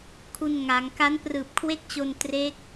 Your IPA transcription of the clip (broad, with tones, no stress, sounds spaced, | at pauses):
kʰ u˧ n ŋ a˩˦ ŋ k a˦˥ n p r ɯː˨˩ p̚ kʰ w e˥˩ k̚ t͡ɕ o˧ n t r e˦˥ k̚